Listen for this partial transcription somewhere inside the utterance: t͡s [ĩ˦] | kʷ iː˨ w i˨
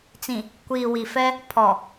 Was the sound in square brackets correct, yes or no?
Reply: no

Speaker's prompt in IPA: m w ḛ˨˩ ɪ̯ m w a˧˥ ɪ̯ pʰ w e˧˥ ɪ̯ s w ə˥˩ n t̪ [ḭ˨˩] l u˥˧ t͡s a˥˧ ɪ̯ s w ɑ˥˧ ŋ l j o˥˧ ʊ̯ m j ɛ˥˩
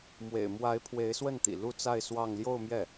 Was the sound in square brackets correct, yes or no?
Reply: yes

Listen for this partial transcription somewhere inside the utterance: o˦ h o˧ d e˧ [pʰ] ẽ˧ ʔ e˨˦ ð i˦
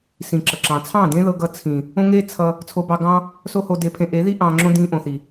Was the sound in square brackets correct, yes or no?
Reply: yes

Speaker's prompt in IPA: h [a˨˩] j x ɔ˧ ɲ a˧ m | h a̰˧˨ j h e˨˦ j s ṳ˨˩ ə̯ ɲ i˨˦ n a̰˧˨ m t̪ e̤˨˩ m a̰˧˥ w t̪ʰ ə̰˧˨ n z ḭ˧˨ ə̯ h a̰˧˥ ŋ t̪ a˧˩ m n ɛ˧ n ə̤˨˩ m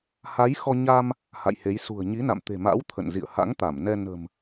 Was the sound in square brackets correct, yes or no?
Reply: no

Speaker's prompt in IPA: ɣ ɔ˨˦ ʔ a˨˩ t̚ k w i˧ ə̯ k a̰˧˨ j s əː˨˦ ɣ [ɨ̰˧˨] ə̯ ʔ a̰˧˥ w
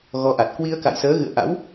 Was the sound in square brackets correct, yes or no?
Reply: yes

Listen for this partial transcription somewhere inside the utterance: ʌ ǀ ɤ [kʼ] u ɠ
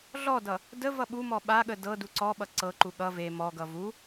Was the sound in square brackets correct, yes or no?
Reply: no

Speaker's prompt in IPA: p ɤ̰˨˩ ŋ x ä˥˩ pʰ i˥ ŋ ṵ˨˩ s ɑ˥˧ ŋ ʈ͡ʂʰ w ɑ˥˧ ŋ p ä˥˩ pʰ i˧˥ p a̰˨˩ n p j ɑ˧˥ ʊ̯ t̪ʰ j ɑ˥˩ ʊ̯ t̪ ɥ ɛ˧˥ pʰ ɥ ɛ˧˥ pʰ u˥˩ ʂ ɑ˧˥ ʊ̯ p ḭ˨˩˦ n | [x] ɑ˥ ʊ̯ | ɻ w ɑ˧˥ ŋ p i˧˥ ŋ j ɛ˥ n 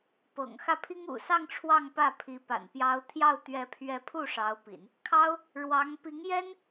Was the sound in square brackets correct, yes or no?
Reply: no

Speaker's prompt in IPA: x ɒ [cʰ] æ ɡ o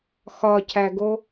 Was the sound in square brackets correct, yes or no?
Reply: yes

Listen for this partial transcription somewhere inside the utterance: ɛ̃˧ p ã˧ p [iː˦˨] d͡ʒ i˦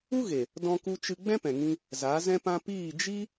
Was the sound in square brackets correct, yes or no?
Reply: yes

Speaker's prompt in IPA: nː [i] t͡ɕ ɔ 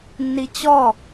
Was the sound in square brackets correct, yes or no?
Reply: yes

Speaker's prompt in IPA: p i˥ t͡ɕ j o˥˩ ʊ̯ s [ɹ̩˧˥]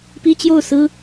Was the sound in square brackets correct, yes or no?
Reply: no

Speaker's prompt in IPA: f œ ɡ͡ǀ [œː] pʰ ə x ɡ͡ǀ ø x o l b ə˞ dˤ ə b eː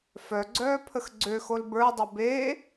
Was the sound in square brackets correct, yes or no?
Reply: yes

